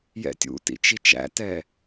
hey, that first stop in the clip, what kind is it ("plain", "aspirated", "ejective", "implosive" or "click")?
plain